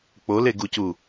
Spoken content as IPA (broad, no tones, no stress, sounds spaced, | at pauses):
k͡p o l e ɡ u c u